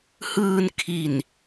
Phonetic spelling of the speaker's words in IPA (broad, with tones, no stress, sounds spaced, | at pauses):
h ɯː˧ n kʰ i˨˩ n